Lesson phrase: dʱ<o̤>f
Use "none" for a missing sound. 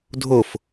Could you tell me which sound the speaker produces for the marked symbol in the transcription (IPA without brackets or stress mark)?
o